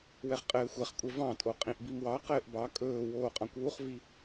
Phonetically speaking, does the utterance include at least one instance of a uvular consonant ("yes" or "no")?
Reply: yes